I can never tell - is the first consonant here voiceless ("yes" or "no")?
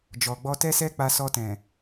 no